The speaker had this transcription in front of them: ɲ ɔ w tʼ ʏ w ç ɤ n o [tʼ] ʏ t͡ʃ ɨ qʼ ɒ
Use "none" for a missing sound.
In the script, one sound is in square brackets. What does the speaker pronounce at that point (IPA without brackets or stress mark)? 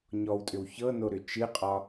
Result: ɾ